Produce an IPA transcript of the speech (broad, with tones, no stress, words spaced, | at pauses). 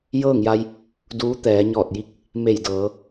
jɤː˥˨ŋja˧j | duː˧˥t̪ɛː˩˧ ɲɔː˧˩t̚ji˧˥k̚ | me˧˩j dɤː˩˧